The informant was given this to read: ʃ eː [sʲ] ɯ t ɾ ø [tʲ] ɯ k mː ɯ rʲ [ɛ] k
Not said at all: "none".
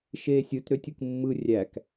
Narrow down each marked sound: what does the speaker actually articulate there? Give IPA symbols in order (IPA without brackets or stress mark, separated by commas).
sʲ, tʲ, æ